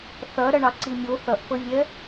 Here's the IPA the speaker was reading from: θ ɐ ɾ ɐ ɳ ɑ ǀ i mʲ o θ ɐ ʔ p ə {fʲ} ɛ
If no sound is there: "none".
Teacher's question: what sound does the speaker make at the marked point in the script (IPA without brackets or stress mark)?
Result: vʲ